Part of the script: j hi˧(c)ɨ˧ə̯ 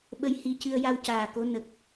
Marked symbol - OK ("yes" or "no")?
yes